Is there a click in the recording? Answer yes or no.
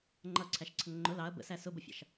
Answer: yes